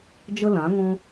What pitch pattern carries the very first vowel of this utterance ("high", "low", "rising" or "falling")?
high